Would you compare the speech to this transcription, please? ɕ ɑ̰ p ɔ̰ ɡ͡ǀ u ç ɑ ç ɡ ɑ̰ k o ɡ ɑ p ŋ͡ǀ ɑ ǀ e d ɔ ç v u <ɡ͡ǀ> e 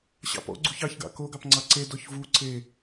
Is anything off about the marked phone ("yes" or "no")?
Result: yes